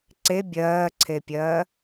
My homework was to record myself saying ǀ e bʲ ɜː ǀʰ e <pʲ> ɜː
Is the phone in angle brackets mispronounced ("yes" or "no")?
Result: no